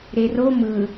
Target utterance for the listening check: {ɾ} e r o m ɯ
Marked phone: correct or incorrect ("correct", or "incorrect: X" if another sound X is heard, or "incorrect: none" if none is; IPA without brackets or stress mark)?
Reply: correct